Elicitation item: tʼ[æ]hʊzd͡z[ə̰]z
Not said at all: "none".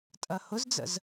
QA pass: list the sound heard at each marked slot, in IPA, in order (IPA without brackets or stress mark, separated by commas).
ɐ, ə̰